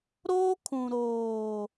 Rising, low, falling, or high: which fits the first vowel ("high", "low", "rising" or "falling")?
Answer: high